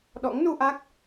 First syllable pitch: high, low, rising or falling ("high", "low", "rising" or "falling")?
rising